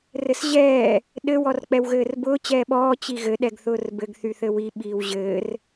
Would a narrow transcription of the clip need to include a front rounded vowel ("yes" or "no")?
yes